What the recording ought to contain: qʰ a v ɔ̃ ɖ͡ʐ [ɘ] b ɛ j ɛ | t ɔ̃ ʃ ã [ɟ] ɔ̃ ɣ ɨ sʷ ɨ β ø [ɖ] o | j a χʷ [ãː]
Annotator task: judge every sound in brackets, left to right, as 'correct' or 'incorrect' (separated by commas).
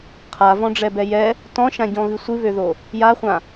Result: incorrect, correct, incorrect, incorrect